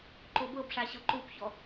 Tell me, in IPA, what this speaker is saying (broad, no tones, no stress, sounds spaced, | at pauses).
ǃ o b ɤ b ʂ a ɕ ɤ ǃ u p ç ɔ